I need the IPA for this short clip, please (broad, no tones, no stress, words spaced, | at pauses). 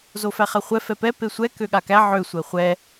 zofæχaχʷɛ fɛpɛ pesʷɛ køɠakæ ʕø sʷɛχʷɛ